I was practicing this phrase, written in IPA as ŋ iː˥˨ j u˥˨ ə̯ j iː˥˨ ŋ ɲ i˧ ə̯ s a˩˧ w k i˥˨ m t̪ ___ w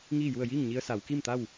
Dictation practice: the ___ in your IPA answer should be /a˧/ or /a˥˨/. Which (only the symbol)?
a˥˨